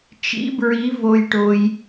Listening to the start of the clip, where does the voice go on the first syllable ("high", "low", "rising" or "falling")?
rising